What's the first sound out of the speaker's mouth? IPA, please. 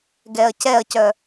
ɡ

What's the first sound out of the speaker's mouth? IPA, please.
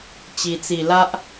t͡ɕ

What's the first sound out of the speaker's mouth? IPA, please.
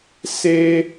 s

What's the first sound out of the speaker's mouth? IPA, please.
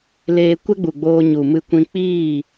l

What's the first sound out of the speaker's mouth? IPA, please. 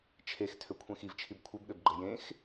t͡ʃʰ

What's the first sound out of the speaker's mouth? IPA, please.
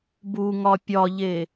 b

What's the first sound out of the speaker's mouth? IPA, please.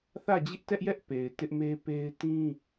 θ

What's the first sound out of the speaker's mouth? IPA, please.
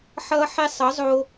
ħ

